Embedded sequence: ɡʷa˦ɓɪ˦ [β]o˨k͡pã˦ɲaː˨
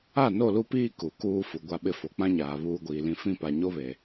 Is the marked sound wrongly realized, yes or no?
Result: yes